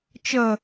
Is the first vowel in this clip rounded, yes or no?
no